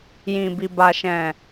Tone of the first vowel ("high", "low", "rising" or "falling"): low